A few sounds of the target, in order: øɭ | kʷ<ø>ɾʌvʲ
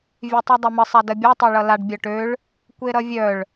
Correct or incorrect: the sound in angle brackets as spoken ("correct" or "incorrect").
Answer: incorrect